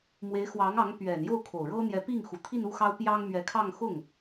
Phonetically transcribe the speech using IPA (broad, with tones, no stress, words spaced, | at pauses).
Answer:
mwe˧˥ɪ̯xwɑ˧˥ŋɑ˧˥ŋ pɥɛ˨˩n jo˥˩ʊ̯kʰo˨˩ʊ̯ɻɤ˥n̪jɛ˧˥ pi˥˩ŋxu˨˩t̪ʰi˥˧n u˥˩ xɑ˥ʊ̯pjɑ˥ŋ mɥɛ˧˥kʰɑ˥˧ŋ xʊ˥˩ŋ